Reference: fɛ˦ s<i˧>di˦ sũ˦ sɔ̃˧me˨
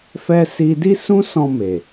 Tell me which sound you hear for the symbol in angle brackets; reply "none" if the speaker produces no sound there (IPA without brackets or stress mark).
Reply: i˧